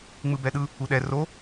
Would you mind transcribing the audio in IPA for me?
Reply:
ŋ͡m ɯ b ɛ ɗ ɯ | u ɗ ɛ r o

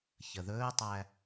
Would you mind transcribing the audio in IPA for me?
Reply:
ç ə ð ɵː tˤ æ

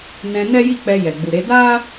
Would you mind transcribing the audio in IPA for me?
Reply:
n ɛ̃˧ n ɛ˦ j i˦˨ k͡p ɛ˧ j ɛ˨ ɡ͡b u˨ ɾ e˨˦ d a˦

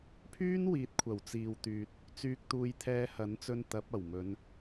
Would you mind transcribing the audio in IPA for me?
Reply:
pʰ yː˥ n w iː˨˥ t̚ kʷʰ ɐ˨˩ w t͡s iː˨ w t̪ yː˨ t̚ | t͡s yː˧ k̚ t̪ uː˧ j t̪ʰ ɛː˧ h ɐ˨˥ n t͡s ɵ˧ n t̪ ɐ˨˥ p̚ ɐ˨˩ w m ɵ˨˧ n

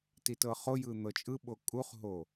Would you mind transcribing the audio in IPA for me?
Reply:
t i t ɤ χ o j ɯ n̪ ɤ t͡ʃʼ ɯ ɓ o kʼ u χ ɦ o

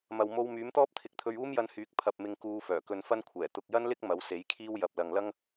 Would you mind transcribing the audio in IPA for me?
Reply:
m ɐ˨ w m o˧ w m yː˨˥ m t̪ ɔː˥ p̚ t̪ʰ ɪ˨˥ k̚ t̪ʰ ɵ˧ ɥ uː˥ m j ɐ˧ n h yː˨˥ k̚ pʰ ɐ˧ p̚ m ɪ˧ ŋ k uː˧ f œː˨˩ k ɵ˧ n f ɐ˥ n kʷʰ ɛː˨˩ t̪ ʊ˨ k̚ j ɐ˥ n l ɪ˥ k̚ m ɐ˨˥ w s e˨˥ j kʰ iː˥ w j ɐ˨ p̚ l ɐ˨ ŋ l ɐ˥ ŋ

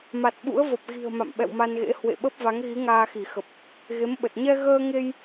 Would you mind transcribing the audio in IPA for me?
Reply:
m a˨˩ t̚ ɓ ṵ˧˥ ə̯ v ə˨˩ p̚ ɣ i̤˨˩ ə̯ m a̰˧˨ m ɓ ɛ̰˧˨ w m a˧ n ɣ ḛ˧˥ h w ḛ˧˨ ɓ ə˦˥ p̚ v a˨˦ ŋ ɣ i˨˦ ŋ aː˧ x i˧˩ x ə˨˩ p̚ | ɣ e˨˦ m ɓ ə˨˩ t̚ ɲ ɛ˧ ɣ əː˧ ŋ e˧ j

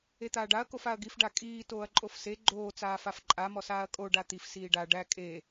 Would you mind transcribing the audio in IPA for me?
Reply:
e t̪ aː ɖ a ɐ̯ k o f a ɐ̯ ɡ i f ɖ a kʼ iː t oː ɐ̯ ǃʼ o f s e ɡ͡ǃ oː t͡s aː f a f ǃʼ a m ɔ s aː ɐ̯ kʼ o ɖ a t̪ i f s iː ɖ a ɖ æ kʼ e

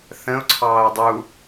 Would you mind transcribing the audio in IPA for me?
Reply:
θ ə̃ ʊ̯ ǀʰ ɑː ə̯ dˤ u

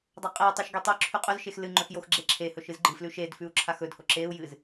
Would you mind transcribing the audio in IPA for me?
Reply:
dˤ a qʼ e i̯ tˤ ʉ ʃ ɡ e tˤ ɵ ǁʰ ʉ qʼ ɵ z ʃ e x l ɨ ŋ͡ǃ ɵ x j o x ɡ͡ǁ e ǁʰ e h ɵ ʃ ɨ z ɡ͡ǃ ɨ f l ʉ ʃ e d f ʉ u̯ ǁʰ a x ɵ d h o ǁ e u̯ j ɨ z

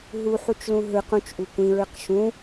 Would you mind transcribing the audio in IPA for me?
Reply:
ɦ u ħ u t͡ʃ l ũ ɦ ɯ q ũ t͡ʃ ʔ u kʷ ĩ ɹ ɯ q ʃ ũ

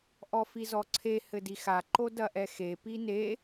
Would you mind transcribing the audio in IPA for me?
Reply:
ʔ ɔ f i z ɔ ǀʰ e h ɘ d i x a ǃ o d ɐ ʔ ɛ x e p i n e

